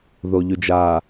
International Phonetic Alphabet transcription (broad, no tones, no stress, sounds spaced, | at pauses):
ð o ʎ ʉ d͡ʒ a